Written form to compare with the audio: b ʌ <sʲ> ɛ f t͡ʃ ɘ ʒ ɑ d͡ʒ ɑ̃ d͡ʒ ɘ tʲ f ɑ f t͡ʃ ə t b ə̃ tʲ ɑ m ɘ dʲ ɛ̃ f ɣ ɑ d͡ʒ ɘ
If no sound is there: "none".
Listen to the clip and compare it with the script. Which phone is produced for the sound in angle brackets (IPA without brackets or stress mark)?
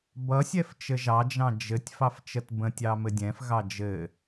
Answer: sʲ